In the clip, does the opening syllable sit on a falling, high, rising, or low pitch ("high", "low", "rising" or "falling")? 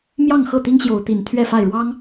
falling